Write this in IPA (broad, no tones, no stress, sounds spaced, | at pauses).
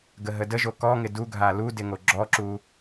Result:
ɡ ə ɦ ə d ə ʒ o k ɔ ŋ ɪ d u ɡʱ a l u d ɪ ŋ o ɡ͡ǁ ɔ ǁ u